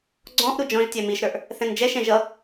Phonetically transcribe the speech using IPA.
ɡ͡ǀ ɔ̃ ʔ ɾ u d͡ʒ ɔ̃ ʒ tʲ ɛ m i ʃ ɾ ə˞ ʔ | θ ɛ̃ n d͡ʒ ɛ ʃ ɛ̃ ʒ ʌ

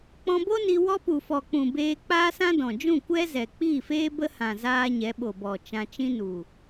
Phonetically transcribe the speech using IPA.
k͡p ɔ̃˧ b o˦ n i˧ w ɔ˦ p u˨ f ɔ˨ k͡p ũ˨ b eː˧ k͡p aː˦ s ã˦ d ɔ̃˨ d͡ʒ ũ˦˨ kʷ ɛ˦ z ɛ˨ k͡p iː˦˨ f eː˦ b ə˦ h ã˨ z aː˧ ɲ ɛ˨˦ ɓ o˨ b ɔ˨ t͡ʃ ã˧ t͡ʃ ĩ˦ n u˨

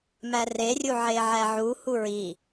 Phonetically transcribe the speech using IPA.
m æ r e rʲ u ʕ e ʕ æ ʕ u h u ɹ i

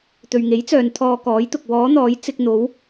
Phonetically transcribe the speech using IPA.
t̪ ɵ˨ ɥ ŋ e˨˥ j t͡s œː˨ n t̪ʰ ɔː˧ k ɔː˨˥ j t̪ ʊ˨ k̚ w ɔː˨˥ n̪ ɔː˨˥ j t͡s ɪ˧ k̚ n̪ o˨˥ w

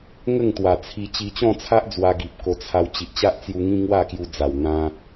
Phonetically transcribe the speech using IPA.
ŋ ə˥˧ ŋ t̪ w a˨˩ t͡sʰ i˧ t͡ɕ i˧ t͡ɕ ɔ̃˥˧ t͡sʰ a˦ ʔ d͡z w a˧ ɡ i˨ p̚ k o˧ t͡sʰ a˧ w t͡ɕ i˨ ʔ t͡ɕ a˦ ʔ t͡s j u˧ ŋ ĩ˦ ŋ w a˥˧ k j u˧ d͡z a˨˩ w n̪ ã˧

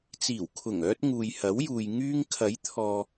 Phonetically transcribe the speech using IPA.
t͡s iː˨˩ w kʰ ʊ˨˩ ŋ œː˧ t̚ ŋ uː˨ j h ɐ˨˥ w j uː˨ j ŋ yː˧ ŋ kʰ ɐ˨˥ j t̪ʰ ɔː˨

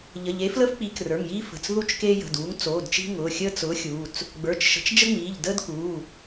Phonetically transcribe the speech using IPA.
ʎ ə˩˧˩ ʎ e˨˥ f l ə˥ f k͡p i˨˥ k r ə˞˩˧˩ ŋ j iː˥ f ə̤˩˧˩ t͡s ð u˥ t͡ʃ k eː˥ j ə̤˩˧˩ d uː˨˥ ŋ t͡s oː˩˧˩ d t͡ʃ i̤˥ ŋ ʊː˩˧˩ xʲ əː˥ t͡s ʊː˨˥ xʲ uː˩˧˩ t͡s | ɡ͡b ə˞˩˧˩ t͡ʃ ʃ ə̤˨˥ t͡ʃ d͡ʒ ə˥ ŋ͡m iː˩˧˩ ʎ d əː˥ d k uː˩˧˩

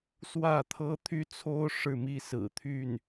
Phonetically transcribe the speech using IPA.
s w ä˥˩ t̪ʰ ɤ˥ t̪ʰ y˥ t͡sʰ o˥ ʊ̯ ʂ ɻ̩˥˩ m i˥ s ɹ̩˨˩ t̪ʰ y˥˩ n

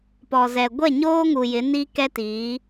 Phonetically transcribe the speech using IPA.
p ɔ˨ z ɛ˨ ɡʷ ɛ˦˨ ɲ oː˦ ŋ u˨ j ɪ˨˦ n i˦ k ɛ˦ t iː˨˦

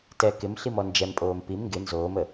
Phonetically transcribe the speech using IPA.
t ɛ k ɪ m ɬ i m ɔ n d͡ʒ ɛ m pʼ oː m p i m ŋ ɡ ɪ n z oː m ə

